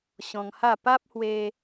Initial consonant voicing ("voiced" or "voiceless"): voiceless